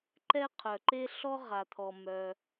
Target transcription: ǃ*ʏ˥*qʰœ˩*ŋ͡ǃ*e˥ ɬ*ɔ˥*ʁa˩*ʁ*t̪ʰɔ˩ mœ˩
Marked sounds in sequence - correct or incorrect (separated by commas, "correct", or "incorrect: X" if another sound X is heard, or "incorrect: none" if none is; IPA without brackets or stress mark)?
incorrect: ɛ˥, incorrect: ǃ, correct, incorrect: none